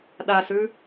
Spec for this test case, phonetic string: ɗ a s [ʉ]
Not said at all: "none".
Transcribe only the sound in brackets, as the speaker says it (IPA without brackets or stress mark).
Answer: ʉ